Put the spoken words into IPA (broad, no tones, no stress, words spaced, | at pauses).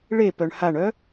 ɭepœɳ haɳœ